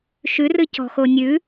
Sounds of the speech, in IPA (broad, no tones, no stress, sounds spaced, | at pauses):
ʃ ʉ r ɨ c ɔ̤ x o nʲ ʉ